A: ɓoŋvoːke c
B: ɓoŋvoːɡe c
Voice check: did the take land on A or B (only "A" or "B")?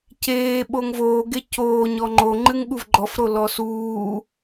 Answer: B